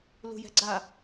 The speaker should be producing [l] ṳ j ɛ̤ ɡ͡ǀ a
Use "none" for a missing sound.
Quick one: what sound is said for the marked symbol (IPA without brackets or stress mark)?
l